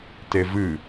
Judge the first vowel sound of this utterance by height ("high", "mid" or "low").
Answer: mid